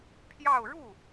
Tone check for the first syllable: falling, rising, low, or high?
falling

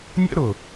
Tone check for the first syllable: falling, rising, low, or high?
high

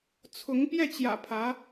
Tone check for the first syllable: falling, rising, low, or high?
rising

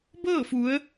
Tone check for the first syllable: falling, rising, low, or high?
falling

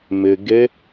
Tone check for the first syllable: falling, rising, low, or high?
low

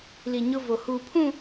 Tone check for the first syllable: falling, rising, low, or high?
low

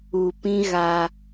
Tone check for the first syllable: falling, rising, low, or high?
low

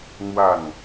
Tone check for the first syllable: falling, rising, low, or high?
falling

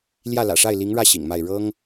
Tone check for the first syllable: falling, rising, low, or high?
falling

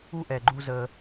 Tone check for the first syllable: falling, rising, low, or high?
high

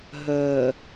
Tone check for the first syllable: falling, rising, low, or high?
low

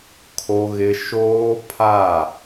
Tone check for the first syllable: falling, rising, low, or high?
high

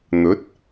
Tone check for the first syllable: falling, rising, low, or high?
rising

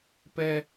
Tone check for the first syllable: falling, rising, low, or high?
high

